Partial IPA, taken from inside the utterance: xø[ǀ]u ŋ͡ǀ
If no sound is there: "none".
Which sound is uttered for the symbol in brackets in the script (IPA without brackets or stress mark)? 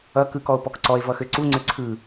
ǀ